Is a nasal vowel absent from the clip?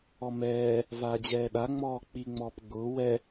yes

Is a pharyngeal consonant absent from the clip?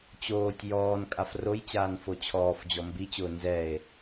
yes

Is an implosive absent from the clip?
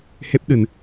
no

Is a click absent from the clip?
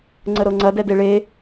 no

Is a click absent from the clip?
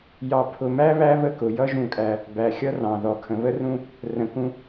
yes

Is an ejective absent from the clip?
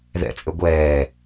no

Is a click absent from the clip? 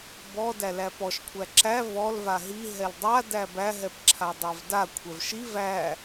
no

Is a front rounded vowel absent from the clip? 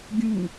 yes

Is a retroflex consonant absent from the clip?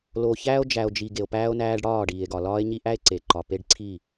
no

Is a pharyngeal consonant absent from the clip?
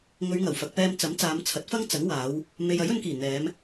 yes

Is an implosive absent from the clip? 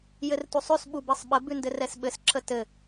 no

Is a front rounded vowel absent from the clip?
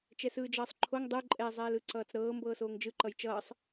yes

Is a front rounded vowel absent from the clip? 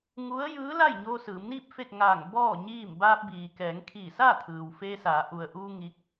yes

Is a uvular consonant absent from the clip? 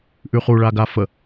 no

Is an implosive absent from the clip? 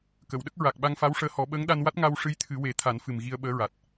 no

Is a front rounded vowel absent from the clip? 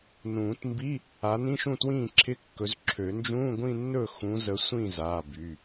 no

